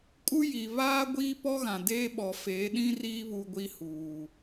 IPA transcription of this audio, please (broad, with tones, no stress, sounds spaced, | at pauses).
kʼ u˦ j i˨ β aː˦ ɡʷ iː˦ p ɔ˦ ɣ ã˨ d eː˦ ɓ ɔ˨ f eː˨˦ ɗ ĩ˦ r iː˦ β u˦ ɡʷ i˦ h uː˨